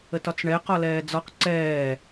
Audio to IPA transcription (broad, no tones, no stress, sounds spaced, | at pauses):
ə t ɒ t͡s ɳ ɛ q ɒ l ɛː d͡z ɒ q ǀ ɛː